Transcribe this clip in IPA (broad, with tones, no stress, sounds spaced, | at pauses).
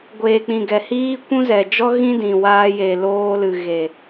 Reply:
ɡʷ eː˨ k͡p ĩ˨ ɡ ɛ˨ h iː˦ kʷ ũ˦ z ɛ˨ d͡ʒ ɔ˦ ɣ ĩ˦ d ĩ˨ w aː˧ j e˨ l oː˧ l ɨ˨ ɣ e˨